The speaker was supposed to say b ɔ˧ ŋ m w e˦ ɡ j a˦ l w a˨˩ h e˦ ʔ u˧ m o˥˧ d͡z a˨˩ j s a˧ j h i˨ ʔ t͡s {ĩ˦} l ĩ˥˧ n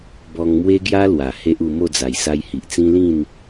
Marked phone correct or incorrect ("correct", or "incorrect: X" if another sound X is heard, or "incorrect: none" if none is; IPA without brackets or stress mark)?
correct